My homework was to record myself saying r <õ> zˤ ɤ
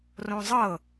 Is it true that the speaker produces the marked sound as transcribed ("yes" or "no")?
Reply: yes